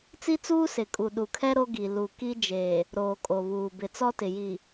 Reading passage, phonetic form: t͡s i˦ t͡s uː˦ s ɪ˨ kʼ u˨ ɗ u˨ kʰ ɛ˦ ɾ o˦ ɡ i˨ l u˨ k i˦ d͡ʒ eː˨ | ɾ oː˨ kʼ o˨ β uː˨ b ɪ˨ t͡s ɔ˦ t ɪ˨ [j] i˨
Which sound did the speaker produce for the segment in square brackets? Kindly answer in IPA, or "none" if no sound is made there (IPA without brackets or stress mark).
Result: j